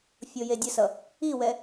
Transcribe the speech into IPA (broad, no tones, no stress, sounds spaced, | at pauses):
fʲ o j e dʲ ə s ʌ | i w ɛ